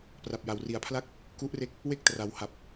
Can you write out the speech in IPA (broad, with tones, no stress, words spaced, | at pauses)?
pra˨˩p̚ja˨˩wri˨˩a̯pʰla˥˩k̚ | ku˦˥ʔre˦˥k̚ | we˥˩k̚tra˩˦wha˨˩p̚